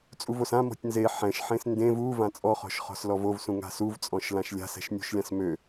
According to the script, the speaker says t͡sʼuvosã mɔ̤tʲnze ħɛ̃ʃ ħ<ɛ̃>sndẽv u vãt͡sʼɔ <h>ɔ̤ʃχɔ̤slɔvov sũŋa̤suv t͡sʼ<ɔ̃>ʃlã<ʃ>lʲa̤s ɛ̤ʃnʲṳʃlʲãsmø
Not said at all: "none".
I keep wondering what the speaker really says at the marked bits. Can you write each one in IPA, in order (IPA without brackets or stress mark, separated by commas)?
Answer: ẽ, χ, ɔ̃, ʃ